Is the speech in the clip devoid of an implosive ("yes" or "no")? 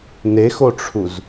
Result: yes